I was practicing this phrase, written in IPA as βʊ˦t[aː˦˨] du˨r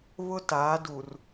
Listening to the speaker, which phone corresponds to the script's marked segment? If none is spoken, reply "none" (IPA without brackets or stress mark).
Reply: aː˨˦